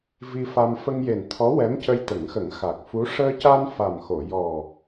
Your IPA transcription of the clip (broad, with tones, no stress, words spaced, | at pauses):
vi˧fa˧m fə˧ŋje˨˩nt̪ʰɔ˧˥ wɛ˧˥mcə˧jt̪ə˨˩˦ŋxə˨˩˦ŋ xa˨˩k̚fu˧˥ ʂəː˧ca˧n fa˨˩mxo˨˩˨jɔ˨˩